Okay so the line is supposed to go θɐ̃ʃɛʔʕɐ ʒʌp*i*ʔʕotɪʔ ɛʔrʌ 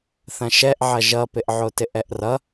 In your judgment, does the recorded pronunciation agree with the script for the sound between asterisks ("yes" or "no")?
no